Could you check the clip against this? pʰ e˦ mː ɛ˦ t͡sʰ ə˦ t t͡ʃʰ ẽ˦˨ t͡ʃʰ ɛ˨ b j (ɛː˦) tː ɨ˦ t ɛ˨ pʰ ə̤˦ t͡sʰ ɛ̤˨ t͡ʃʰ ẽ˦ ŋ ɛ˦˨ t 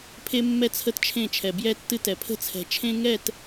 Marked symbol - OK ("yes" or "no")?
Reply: no